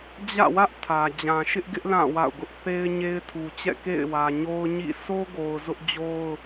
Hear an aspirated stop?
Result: yes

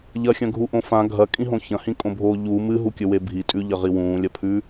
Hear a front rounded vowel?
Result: no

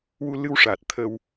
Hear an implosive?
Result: no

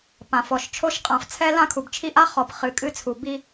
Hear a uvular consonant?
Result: yes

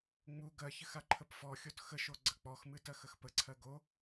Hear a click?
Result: yes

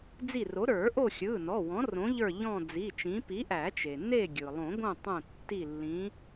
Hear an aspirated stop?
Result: no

